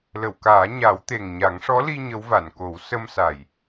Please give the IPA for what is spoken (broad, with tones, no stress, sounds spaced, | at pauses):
l ə˨˩˨ w k aː˨˩˦ ɲ a˨˩˦ w t̪ e˨˩ ŋ ɲ a˨˩˦ ŋ ʂ ɔ˧˥ l i˧ ɲ ə˧˥ w v a˨˩˨ n k o˨˩˦ w s ə˧ m s a˨˩ j